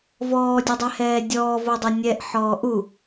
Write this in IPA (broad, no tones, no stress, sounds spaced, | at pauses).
v ɔː dʲ e dˤ ɛ h ɛː dʲ ɔː v o dˤ e nʲ ɛ ʔ ħ ɔː ʔ u